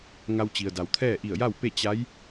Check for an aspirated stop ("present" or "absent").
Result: present